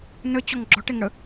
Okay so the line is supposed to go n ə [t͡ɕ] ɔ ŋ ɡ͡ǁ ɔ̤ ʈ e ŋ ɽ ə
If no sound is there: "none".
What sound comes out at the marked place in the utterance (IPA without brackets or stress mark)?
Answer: t͡ɕ